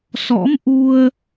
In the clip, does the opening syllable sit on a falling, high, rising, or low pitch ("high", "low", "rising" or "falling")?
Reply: rising